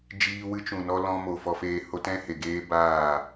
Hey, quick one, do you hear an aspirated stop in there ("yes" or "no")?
no